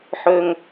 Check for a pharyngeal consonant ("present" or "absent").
present